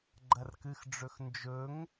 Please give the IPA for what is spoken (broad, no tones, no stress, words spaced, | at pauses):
ɡ͡ǃɐrkɨxɖ͡ʐɵx nd͡ʒɵŋ